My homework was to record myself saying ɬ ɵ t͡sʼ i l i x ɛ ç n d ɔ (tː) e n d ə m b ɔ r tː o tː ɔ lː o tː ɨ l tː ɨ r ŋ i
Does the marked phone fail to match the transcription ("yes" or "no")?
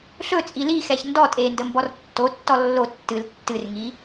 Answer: yes